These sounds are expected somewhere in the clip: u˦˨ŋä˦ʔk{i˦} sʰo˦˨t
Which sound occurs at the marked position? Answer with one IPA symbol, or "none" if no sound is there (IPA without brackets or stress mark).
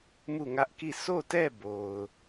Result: i˦˨